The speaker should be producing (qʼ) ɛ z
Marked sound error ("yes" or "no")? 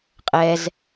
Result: no